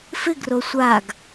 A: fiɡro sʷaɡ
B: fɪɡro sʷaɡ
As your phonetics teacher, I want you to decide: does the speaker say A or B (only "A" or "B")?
B